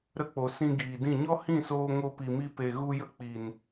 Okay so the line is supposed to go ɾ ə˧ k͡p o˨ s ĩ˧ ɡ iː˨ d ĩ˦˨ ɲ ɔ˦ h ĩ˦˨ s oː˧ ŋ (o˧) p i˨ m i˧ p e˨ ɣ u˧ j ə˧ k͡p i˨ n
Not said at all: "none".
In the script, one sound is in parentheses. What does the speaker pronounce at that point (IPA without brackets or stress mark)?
o˧